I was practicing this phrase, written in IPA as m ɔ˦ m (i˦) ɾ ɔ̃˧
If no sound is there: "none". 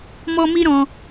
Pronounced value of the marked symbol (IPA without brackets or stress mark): i˦